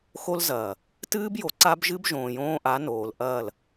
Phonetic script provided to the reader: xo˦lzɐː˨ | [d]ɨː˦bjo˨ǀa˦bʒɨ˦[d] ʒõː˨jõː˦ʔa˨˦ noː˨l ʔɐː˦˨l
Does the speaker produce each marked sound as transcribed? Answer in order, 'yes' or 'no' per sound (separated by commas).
no, no